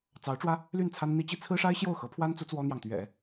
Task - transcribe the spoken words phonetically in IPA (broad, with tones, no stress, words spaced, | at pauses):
t͡sɑ˧˥ʊ̯ʈ͡ʂwä˥ | ly˥˩nt͡sʰa˥nn̪i˥t͡ɕi˥ t͡sʰɹ̩˥ʂa˥ɪ̯ɕjo˥˩ʊ̯ xɤ˧˥pʰwa˥nt͡su˧˥ t͡swɔ˥n̪jɑ˨ŋt̪ɥɛ̰˨˩˦